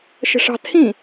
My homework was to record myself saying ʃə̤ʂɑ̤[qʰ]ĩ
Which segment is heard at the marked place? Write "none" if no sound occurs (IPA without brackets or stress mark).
tʰ